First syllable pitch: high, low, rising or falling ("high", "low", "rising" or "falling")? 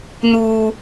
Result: high